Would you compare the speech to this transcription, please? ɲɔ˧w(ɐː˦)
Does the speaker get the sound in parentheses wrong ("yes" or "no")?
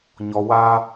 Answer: yes